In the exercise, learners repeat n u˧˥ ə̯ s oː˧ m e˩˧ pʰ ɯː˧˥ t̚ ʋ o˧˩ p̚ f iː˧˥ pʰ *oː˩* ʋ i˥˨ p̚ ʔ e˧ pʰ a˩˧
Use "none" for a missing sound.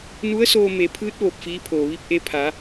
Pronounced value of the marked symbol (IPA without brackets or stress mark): oː˩